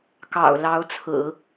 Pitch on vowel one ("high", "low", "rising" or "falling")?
low